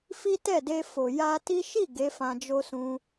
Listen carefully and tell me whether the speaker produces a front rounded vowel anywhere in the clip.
no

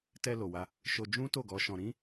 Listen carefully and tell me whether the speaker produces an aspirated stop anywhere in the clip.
no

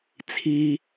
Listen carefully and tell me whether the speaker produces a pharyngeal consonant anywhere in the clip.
no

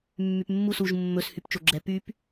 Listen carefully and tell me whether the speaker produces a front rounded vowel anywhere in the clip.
yes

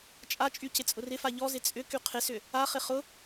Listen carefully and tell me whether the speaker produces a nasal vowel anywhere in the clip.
no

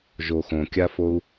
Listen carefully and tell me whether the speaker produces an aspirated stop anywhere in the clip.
no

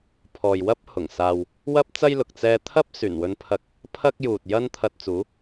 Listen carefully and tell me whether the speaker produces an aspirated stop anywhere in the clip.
yes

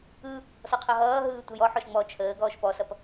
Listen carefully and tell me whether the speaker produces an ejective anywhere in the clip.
no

